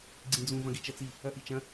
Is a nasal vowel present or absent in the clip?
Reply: present